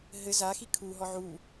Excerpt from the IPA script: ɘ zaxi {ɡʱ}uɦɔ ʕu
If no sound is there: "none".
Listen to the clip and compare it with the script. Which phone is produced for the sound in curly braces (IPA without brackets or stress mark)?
kʰ